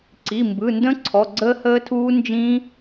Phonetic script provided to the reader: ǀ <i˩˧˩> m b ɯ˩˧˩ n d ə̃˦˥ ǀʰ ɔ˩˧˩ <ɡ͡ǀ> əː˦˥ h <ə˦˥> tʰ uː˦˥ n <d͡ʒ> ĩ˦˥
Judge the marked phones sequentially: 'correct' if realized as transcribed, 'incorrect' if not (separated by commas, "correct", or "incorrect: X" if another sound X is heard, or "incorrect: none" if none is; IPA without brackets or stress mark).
correct, correct, incorrect: əː˦˥, correct